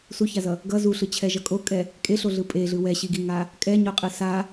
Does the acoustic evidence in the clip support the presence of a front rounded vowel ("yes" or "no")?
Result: no